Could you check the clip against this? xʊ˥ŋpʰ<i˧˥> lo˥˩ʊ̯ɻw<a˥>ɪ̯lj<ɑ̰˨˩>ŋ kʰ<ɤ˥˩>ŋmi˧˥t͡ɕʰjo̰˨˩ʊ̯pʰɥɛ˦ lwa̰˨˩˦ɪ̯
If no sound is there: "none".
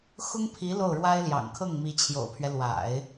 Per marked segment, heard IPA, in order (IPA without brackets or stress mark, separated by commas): i˧˥, a˥, ɑ̰˨˩, ɤ˥˩